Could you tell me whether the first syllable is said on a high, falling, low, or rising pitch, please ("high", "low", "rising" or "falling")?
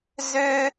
high